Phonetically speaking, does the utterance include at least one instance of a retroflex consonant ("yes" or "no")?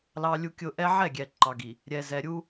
no